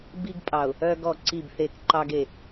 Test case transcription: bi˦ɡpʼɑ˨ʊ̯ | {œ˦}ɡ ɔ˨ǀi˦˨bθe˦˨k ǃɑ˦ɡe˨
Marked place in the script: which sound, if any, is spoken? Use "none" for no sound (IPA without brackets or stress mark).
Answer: œ˦